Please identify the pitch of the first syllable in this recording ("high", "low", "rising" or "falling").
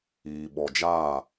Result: low